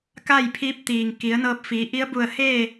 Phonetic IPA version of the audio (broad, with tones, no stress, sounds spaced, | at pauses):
k a˥˨ j pʰ iː˧˥ p̚ t̪ iː˩ ŋ k i˩˧ ə̯ n ɤː˧ p̚ f iː˩˧ ʔ i˧˥ ə̯ b u˧˩ ə̯ h eː˥˨